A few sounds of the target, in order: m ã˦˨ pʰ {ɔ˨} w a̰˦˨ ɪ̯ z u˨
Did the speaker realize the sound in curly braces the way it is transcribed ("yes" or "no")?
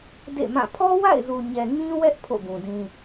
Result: no